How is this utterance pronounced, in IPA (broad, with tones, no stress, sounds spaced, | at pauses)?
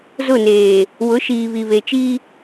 z ʊ˦˨ n eː˨ | w ʊ˨˦ ʃ iː˨ β i˨ β e˨ t͡ʃ iː˦